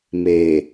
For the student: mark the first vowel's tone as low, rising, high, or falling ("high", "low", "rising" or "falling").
low